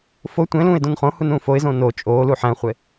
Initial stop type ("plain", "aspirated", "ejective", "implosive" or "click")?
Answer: plain